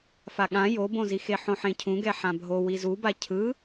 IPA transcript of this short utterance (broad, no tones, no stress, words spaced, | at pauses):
faɠã jobõzixe ħõħẽcʰũɡɛ ħãbʱo wizuba cʰɯ